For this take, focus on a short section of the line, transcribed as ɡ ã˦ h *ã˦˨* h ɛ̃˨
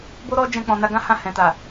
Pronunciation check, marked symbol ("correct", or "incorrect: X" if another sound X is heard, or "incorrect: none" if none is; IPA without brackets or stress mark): correct